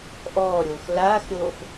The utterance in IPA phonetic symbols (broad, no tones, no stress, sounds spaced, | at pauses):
ʔ ɔː ɾʲ oː x l aː x ɾʲ oː x